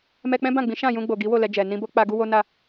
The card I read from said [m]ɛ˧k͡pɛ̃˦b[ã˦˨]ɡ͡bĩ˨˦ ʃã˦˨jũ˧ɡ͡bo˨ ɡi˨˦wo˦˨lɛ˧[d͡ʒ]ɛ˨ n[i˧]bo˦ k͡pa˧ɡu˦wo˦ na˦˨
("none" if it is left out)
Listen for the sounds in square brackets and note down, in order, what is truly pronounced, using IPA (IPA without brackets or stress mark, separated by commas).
m, ã˦˨, d͡ʒ, ĩ˧